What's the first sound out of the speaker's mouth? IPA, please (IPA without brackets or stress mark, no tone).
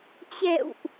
t͡ɕ